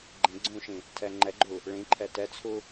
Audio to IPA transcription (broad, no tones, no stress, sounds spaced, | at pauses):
ɡ͡ǃ ĩ ɡ͡ǀ ũ ʃ ĩ | tʰ ɛ ŋ͡ǃ ɛ ɡ͡ǃ u | ɭ ĩ ǃʰ ɛ t ɛ t͡sʰ u